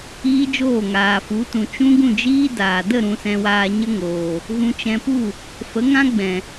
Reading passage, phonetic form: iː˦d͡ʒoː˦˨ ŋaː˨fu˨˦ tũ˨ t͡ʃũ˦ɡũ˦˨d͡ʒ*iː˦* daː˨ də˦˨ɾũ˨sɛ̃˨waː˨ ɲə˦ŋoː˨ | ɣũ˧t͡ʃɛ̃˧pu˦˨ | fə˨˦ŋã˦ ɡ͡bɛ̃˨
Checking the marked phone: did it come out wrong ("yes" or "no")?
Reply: no